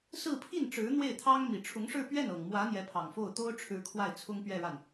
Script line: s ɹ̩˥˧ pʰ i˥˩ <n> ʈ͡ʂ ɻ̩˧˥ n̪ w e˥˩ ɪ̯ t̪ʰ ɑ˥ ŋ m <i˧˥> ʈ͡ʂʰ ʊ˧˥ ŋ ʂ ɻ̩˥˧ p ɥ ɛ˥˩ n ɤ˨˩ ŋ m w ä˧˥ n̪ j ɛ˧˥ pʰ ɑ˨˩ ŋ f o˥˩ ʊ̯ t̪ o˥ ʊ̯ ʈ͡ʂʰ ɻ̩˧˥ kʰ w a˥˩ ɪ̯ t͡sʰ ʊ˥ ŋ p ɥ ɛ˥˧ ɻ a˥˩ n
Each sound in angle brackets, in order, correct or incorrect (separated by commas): correct, incorrect